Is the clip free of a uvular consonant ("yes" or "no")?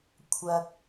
yes